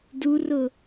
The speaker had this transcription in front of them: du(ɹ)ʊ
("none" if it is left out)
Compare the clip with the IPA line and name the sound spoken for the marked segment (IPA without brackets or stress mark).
r